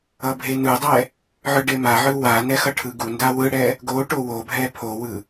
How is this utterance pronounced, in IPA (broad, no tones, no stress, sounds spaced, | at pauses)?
ʌ bʱ e n ɯ dˤ ɛ | ʕ ɯ ɖ e m a ʕ ɯ w a n ɛ x ʌ ʈʰ ɯ ɡ u n d a w ɯ ɽ ɛ | ɡ o ʈ o w o bʱ ɛ pʰ o w ɯ